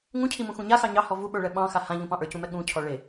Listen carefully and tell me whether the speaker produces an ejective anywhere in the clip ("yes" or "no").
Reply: no